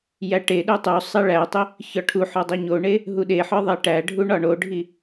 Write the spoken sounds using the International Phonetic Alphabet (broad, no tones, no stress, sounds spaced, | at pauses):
j æ ʈ e ɗ u tˤ u sˤ e ɭ æ tˤ i | ç ɒ ʈʰ u ħ ɒ dˤ u ɲ o ɳ e | ɦ u ɗ e ħ ɒ ðˤ e ʈ æ ɖʱ u ɳ ɒ ɳ o ɖʱ i